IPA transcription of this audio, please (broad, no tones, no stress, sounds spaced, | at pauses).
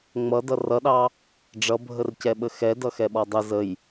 ŋ͡m ʌ d ʌ r ʌ ɗ ɑ | ɖ͡ʐ ʌ bʱ ə r c ɛ ɓ ə x ɛ d ʌ x ɛ ɓ ɔ dˤ ə z ə j